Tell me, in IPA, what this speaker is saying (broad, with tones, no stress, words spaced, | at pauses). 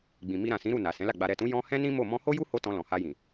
ɡ͡bĩ˨ mi˧ ɾã˨sĩ˨˦ ɾu˦˨na˨ sɛ̃˨˦la˦˨ ɡ͡ba˨ɾɛ˨tũ˨˦ jɔ̃˦ hɛ̃˦nĩ˦mo˦˨ mɔ̃˧ho˦ju˦ ho˦ tɔ̃˧lɔ̃˨ha˧jĩ˨